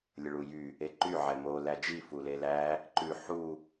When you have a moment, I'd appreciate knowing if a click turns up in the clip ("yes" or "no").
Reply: yes